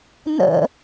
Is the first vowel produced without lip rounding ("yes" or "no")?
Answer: yes